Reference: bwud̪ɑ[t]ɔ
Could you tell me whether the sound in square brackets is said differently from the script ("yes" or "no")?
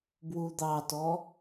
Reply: no